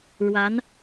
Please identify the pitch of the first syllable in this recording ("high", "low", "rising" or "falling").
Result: rising